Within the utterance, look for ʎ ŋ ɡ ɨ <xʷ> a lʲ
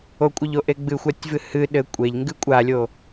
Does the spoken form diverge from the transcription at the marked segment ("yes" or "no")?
yes